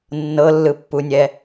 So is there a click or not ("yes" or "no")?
no